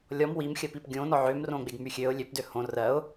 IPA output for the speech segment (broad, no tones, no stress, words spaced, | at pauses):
lʲɔm wimxʲɜpip ɡʲõ nɔʕømrõɡ͡beɡ myxʲøʊ̯ lʲøpdø hõ rɜʊ̯